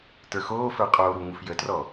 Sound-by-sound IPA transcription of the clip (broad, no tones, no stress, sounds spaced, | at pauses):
t ə˞ x oː f ə˞ qʼ oː ɾ u ŋ u f j ə t r ɔ